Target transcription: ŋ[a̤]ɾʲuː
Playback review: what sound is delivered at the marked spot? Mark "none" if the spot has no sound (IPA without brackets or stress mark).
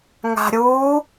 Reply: a̤